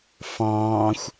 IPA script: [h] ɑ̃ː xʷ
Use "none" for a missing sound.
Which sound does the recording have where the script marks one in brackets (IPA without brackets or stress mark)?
f